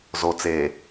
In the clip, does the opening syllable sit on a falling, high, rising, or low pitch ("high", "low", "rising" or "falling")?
low